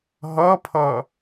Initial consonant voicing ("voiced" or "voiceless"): voiced